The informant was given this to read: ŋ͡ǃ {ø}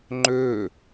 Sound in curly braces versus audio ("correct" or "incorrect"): correct